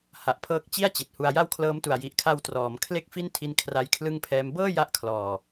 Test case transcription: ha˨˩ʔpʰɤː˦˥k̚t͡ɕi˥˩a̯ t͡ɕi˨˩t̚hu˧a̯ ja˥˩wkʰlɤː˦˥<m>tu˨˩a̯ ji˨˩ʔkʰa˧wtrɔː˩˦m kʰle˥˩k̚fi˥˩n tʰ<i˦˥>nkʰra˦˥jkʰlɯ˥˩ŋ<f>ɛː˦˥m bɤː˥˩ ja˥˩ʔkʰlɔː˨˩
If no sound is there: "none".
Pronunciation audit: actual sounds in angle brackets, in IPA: m, i˦˥, pʰ

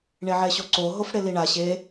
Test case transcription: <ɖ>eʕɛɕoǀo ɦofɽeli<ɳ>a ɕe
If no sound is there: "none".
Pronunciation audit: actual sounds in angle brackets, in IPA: ɳ, ɳ

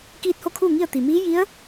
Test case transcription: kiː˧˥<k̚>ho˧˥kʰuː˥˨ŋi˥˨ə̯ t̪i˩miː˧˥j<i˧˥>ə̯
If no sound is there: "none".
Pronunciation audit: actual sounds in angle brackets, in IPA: t̚, i˧˥

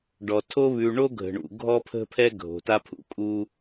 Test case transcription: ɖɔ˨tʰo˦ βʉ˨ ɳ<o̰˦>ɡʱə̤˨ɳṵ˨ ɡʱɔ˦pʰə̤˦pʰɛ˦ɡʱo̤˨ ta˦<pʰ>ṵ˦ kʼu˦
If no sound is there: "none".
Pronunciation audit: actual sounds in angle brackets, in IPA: o˦, pʰ

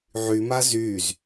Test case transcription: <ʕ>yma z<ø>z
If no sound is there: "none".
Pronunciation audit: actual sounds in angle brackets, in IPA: ʕ, y

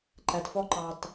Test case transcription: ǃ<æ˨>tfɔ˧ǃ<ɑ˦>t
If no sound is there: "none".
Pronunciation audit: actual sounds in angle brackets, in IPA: æ˨, ɑ˨

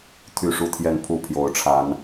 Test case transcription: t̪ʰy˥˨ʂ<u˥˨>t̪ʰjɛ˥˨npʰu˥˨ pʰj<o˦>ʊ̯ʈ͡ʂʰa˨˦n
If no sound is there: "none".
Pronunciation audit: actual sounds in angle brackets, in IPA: u˥˨, o˨˦

